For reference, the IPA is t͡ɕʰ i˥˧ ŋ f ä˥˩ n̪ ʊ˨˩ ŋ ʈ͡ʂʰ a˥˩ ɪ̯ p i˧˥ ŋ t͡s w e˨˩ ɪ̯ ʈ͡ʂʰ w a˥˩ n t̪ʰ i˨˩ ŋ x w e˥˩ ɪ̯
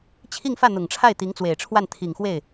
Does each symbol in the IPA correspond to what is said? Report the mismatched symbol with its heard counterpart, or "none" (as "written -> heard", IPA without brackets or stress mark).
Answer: p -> t̪